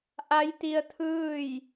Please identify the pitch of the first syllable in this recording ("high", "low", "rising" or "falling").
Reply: rising